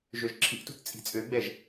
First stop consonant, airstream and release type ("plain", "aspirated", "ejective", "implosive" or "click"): click